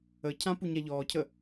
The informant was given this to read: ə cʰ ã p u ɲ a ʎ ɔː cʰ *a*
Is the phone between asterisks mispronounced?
yes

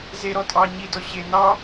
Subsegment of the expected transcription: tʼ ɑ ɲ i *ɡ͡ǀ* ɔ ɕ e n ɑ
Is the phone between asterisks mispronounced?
yes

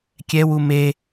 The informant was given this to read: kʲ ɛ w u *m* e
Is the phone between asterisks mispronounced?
no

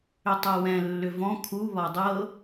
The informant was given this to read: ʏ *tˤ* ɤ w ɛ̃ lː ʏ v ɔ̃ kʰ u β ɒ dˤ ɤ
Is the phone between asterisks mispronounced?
no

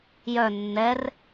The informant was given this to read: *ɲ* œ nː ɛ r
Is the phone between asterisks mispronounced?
yes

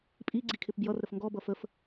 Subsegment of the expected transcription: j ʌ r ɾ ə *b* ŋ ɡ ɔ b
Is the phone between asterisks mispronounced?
yes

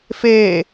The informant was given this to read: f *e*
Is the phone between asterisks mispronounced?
no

